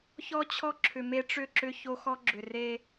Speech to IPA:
ç ɔ˦ t͡ɕʰ ɔ˦ ǁʰ ʏ˨ m e˦ ʈ͡ʂ ʏ˦˨ ǁ ʏ˦ ç o˦ x ɔ˦ ɡ͡ǁ ʏ˨ r e˦

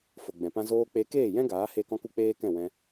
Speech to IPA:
f o˨ ɡ͡b ɛ̃˨ p ã˧ z oː˧ k͡p e˧ k eː˦˨ j ɛ̃˦ ɡ aː˨˦ h e˧ k ɔ̃˦ k u˦ k͡p eː˦ k ɛ̃˦˨ w ɛ̃˧

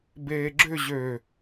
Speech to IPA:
b eː ɡ͡ǁ ʏ ʑ ø

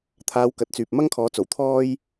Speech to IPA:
t̪ʰ aː˨˧ w k ɐ˨˥ t̚ t͡s yː˨ p̚ m ɐ˥ ŋ kʰ ɔː˨˥ t͡s o˨˩ w t̪ʰ ɔː˥ j

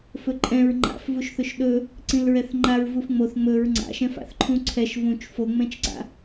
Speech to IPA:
f ɵ ǃʼ ɛ̃ ɹ ŋ͡ǃ a̰ f v u ʃ θ ɵ ʃ ɗ ɵ | ǀ ĩ l ɹ ɛ θ ŋ͡ǃ a ɹ v u f ŋ͡m o θ ŋ͡m ɵ ɹ ŋ͡ǀ a̰ ʃ ɛ̃ f a̰ θ ǃʰ ũ ǀʰ ɛ ʃ v ũ t͡ʃ f o ŋ͡m ɛ̃ t͡ʃ ǀ a̰

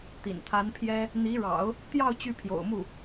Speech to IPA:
t̪ ḭ˨˩ n t̪ʰ a˧˥ n pʰ j ɛ˥ | n̪ i˧˥ ɻ ɑ̰˨˩˦ ʊ̯ | t̪ j ɑ˥˧ ʊ̯ t͡ɕ y˥˩ pʰ j o̰˨˩ ʊ̯ m u˥˩

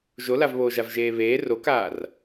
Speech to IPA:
ʒ o l a v β oː ʒ a v ʒ eː β eː r o k aː r

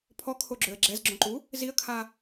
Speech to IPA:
pʰ ɔ kʰ o ɡ͡ǁ ø ə̯ ɡ͡ǁ ɛ z ɡ͡ǁ õ ǃ u | z i ə̯ kʰ a

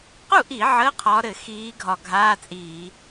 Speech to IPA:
q u˥˩ ʔ i˧˩˧ ʕ əː˧˥˧ qʰ ɒː˨˦ ɾ ɘ˧˩˧ x iː˨˦ ɡʱ ɒ˧˩ ɡʱ aː˧˥˧ t͡sʼ iː˧˩˧

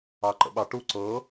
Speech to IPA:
ɑ ǃ ə̰ ɓ ɑ ʈ u ǀ ɤ

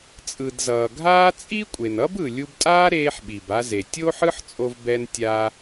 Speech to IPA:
t͡sʼ ɯ˩ d z ʌː˩ ɡʱ aː˥ t͡sʼ i˥ kʷʼ e˩ n ʌ˥ b ɯ˩ lʲ u˧ b tʼ aː˥ ɾ eː˧ ħ ɓ i˩ b a˧ z e˩ tʲ o˥ ħ ɯ˥ ħ t͡sʼ o˧ v b ɛ˧ n tʲ a˧

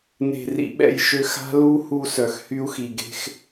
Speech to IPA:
n e̤˨ r ḭ˨ ɓ ɛ̰˦˨ j ʃ ø˦ x a̤˦ l u˦ h u˦ s œ˨ x h y˦ u̯ x i˨ ɡ e̤˦ x

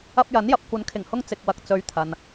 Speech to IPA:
ɐ˧ p̚ j ɐ˨˥ n j ɐ˨ p̚ kʷ ɐ˨˥ n kʰ ɪ˨˩ ŋ h ʊ˧ ŋ t͡s ɪ˨ k̚ w ɐ˨ k̚ t͡s ɵ˨˧ ɥ t̪ʰ ɐ˧ n

